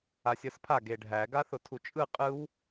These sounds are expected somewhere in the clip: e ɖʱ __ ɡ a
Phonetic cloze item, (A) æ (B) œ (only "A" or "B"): A